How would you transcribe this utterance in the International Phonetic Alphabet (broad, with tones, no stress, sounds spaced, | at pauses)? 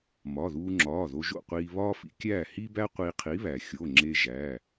m ɒ˩˧˩ ð uː˧ ŋ͡ǁ ɒː˩˧˩ ð o˧ ʒ o̰˥˨ qʷ iː˧ β ɒː˥ f ḭ˧ kʲ æː˥˨ h i˥ b æ˥ qʷ iː˧ qʰ i˨˥ β æ˩ xʲ o˩˧˩ ŋ͡ǁ e˧ ʒ æ˩˧˩